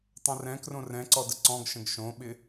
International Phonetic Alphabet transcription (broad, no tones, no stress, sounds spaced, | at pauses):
tˤ œ̃ r ɛ̃ k r õ r ɛ̃ ǀ ɔ d ə ǀ ɔ̃ ɡ ʃ ə̃ ɡ ʃ õ ɓ ɪ